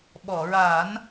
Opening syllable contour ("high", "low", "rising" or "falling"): low